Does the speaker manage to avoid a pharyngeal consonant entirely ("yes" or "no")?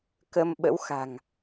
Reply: yes